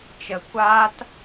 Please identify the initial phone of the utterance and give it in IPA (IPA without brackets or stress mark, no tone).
t͡ʃ